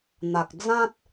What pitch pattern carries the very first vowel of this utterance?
low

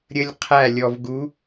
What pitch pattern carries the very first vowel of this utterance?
high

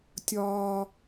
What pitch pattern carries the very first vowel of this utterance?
high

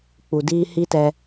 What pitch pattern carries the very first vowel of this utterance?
low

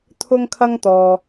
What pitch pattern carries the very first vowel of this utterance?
high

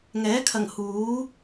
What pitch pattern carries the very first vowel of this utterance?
rising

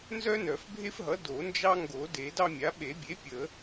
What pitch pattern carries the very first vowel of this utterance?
high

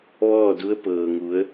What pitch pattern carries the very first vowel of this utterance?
falling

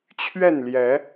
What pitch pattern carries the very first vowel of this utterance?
falling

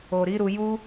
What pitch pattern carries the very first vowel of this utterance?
low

